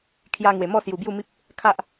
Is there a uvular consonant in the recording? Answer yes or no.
no